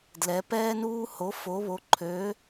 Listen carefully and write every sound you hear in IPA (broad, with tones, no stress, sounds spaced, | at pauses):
d l ɛ˧˥ p ɛː˥ n uː˥ h o˧˥ f o˧˥ β o˧˥ ǃʰ ø˧˥